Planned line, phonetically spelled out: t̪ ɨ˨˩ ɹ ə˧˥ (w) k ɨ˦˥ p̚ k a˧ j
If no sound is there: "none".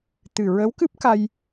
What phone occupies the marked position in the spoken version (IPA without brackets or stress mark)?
w